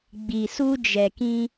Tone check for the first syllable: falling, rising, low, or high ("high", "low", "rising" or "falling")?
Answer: low